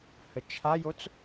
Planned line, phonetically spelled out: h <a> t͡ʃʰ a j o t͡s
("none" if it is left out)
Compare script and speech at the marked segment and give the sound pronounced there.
ə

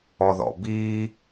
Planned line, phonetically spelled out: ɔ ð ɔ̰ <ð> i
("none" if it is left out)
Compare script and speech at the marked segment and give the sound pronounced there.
b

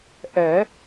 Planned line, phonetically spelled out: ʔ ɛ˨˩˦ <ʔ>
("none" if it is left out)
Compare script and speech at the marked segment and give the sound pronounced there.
none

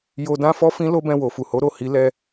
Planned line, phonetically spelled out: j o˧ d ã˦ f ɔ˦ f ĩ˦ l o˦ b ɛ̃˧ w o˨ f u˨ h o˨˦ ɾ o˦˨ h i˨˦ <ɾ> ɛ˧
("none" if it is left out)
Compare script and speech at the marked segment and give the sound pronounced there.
l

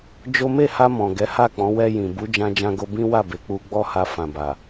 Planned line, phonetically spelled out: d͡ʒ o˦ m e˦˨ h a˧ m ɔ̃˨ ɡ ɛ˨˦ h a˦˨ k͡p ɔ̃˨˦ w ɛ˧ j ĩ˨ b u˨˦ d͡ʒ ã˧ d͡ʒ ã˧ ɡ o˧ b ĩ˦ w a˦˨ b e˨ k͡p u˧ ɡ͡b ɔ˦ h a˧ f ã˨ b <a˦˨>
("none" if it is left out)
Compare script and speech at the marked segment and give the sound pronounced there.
a˨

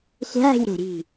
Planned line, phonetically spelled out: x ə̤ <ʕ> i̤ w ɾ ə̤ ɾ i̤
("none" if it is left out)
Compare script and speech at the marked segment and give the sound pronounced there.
ʕ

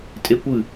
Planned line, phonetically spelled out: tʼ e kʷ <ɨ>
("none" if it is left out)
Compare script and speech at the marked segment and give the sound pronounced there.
ɨ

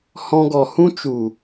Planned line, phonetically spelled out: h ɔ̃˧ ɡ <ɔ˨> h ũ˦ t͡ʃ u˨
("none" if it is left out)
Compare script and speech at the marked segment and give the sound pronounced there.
ɔ˨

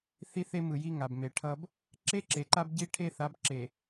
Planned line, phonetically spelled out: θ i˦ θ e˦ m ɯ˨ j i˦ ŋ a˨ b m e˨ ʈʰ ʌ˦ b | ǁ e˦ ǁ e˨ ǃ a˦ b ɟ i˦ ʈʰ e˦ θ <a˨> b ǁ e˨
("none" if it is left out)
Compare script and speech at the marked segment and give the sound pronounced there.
a˨˦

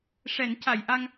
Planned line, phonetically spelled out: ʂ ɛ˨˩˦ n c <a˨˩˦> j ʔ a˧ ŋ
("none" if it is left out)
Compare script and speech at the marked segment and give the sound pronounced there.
a˨˩˨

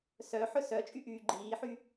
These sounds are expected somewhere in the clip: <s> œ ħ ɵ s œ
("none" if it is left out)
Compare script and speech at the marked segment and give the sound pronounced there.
s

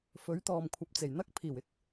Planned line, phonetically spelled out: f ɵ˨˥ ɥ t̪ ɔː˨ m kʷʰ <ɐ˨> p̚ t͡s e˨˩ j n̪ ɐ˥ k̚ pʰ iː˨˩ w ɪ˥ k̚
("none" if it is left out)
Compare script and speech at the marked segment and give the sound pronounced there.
ɐ˨˥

